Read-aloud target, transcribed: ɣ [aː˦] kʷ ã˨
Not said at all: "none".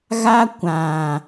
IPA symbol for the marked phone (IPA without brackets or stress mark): a˦